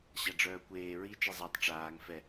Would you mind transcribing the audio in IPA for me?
ɕ a ɖ͡ʐ œː kʷ eː ɹ i t͡ʃ e zˤ a tˤ ʈ͡ʂ aː ŋ f ɛ

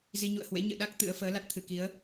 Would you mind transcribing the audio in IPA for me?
z i˧ ɲ ṵ˧˨ ə̯ h w ḛ˧˥ ɲ ɨ̰˧˨ ɗ a˦˥ k̚ t̪ ɨ̰˧˥ ə̯ f əː˨˦ l a˦˥ t̚ t̪ʰ ɨ˧˩ k i˨˦ ə̯

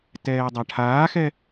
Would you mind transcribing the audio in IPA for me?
t ɛː dˤ a ʈʰ aː x ɛ

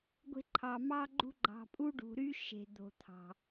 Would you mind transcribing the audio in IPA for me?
ɡʷ e̤˦ ǃʰ ɑ˨ m ɑ˥ ɡ͡ǃ ṳ˥ ɡ͡ǃ ɑ̤˨ pʼ u˦ ɖ ṳ˨ ɾ y˦ ʃ e̤˨ d̪ o̤˨ t̪ʰ ɑ̤˩

